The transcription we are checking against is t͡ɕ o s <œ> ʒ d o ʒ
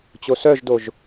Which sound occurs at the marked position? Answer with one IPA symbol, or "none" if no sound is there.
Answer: œ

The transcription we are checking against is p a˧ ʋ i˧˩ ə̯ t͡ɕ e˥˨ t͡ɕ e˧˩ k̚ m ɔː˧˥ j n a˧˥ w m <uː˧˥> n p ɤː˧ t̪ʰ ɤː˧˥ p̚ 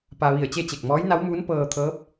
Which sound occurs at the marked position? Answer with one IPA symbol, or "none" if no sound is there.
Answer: uː˧˥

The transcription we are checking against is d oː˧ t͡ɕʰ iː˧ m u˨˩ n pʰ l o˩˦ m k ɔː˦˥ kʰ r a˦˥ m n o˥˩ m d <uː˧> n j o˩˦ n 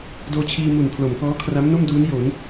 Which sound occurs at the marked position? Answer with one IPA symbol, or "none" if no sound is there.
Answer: uː˦˥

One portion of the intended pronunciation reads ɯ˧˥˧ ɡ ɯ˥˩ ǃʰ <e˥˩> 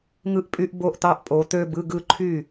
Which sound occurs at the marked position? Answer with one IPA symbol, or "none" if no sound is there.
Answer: y˥˩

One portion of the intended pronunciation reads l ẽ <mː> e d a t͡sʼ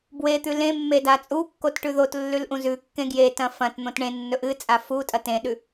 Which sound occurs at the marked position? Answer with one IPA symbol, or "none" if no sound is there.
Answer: mː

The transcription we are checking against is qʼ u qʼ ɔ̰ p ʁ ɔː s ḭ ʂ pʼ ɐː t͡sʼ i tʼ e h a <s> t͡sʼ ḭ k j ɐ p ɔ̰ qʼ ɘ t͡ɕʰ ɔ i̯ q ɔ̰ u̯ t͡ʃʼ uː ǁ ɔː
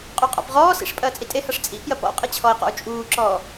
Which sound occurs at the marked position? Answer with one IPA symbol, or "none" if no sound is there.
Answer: ʂ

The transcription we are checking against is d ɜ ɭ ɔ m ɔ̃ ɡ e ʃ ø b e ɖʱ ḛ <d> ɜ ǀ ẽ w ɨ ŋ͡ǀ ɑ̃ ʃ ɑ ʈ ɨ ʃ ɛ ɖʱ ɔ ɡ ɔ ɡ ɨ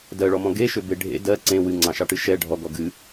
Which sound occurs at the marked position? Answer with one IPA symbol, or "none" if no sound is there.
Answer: d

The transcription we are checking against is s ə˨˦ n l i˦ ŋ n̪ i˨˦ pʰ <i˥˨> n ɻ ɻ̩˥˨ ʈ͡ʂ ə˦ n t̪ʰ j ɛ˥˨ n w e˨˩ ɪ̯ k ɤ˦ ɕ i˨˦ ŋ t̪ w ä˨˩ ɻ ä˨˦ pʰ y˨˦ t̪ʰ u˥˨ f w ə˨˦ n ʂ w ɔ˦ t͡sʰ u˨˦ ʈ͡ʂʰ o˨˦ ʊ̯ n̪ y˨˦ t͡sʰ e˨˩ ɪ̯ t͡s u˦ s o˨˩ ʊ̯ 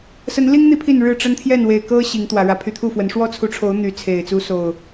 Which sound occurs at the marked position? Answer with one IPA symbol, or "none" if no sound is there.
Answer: i˥˨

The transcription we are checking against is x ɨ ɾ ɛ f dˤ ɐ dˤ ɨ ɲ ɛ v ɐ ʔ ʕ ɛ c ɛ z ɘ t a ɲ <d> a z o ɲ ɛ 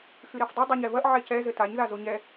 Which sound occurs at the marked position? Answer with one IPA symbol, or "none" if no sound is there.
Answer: ð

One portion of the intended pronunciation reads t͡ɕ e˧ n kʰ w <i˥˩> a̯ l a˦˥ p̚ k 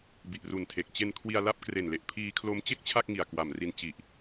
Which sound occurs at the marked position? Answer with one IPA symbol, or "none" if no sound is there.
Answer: i˧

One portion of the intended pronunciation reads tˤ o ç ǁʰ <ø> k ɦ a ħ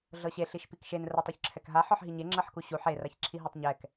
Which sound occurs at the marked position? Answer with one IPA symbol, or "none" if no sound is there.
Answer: ɛ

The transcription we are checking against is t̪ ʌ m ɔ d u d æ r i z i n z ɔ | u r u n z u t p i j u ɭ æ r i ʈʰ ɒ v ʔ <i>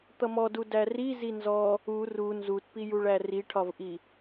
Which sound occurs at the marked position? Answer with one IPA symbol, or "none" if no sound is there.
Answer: i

